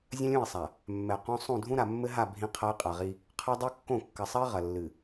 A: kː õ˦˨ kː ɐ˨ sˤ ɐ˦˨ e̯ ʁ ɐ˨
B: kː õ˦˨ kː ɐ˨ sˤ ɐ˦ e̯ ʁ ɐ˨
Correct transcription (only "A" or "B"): B